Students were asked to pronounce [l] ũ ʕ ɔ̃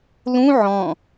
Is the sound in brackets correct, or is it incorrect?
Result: correct